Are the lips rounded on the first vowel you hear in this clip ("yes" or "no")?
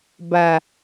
no